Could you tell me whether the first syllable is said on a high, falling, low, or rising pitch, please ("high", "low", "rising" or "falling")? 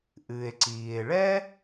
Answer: low